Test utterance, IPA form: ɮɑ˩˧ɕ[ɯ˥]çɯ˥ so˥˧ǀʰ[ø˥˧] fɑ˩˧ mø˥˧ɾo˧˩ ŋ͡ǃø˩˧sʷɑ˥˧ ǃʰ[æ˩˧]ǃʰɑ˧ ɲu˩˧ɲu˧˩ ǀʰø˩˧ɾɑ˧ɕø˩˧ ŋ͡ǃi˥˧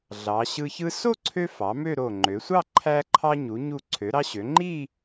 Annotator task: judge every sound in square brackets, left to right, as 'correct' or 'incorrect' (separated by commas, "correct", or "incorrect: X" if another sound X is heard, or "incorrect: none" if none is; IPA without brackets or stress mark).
incorrect: ɯ˧, incorrect: ø˧, incorrect: æ˧